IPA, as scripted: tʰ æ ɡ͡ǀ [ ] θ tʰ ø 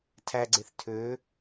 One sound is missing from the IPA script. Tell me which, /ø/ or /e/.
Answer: e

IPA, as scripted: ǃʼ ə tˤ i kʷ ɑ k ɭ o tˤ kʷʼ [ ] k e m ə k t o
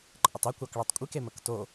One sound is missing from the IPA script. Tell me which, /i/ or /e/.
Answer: i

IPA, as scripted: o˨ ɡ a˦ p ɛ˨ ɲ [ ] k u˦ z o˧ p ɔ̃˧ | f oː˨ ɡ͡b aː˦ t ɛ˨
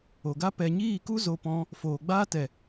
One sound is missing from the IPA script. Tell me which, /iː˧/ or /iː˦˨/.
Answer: iː˦˨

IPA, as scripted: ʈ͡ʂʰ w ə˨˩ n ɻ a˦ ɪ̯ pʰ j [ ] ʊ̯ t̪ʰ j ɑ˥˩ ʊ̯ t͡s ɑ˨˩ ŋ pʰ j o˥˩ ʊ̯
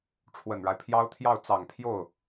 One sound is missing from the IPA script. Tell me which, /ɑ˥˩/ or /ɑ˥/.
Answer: ɑ˥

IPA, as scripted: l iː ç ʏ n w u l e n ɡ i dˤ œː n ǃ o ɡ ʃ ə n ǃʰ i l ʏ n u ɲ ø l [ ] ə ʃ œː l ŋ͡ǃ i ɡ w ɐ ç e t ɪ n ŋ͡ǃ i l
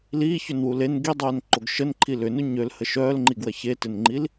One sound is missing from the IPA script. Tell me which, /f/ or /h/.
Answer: h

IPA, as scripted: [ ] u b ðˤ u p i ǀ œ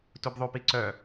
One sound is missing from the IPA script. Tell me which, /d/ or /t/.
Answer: t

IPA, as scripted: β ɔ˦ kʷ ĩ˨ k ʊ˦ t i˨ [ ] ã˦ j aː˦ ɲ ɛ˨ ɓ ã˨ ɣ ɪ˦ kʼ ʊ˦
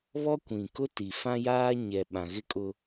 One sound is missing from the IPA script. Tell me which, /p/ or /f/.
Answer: f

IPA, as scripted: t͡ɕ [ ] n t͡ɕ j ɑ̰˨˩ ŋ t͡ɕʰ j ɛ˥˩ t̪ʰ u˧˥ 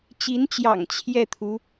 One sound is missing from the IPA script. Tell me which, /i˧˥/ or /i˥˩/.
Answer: i˧˥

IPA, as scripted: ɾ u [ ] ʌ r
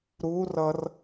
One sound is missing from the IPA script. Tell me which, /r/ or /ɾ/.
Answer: r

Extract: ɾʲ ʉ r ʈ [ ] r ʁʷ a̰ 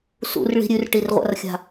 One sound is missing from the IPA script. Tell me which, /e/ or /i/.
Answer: i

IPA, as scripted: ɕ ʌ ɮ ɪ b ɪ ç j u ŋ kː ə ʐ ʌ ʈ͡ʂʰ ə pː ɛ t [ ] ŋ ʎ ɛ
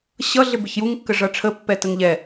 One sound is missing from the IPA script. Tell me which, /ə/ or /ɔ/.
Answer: ə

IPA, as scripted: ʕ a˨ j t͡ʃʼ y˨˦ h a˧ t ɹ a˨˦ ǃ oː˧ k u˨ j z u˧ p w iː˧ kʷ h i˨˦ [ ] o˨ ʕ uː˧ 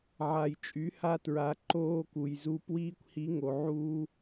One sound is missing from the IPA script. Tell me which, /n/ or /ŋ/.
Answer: ŋ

